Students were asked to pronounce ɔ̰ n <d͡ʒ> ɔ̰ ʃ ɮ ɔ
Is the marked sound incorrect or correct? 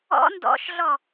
incorrect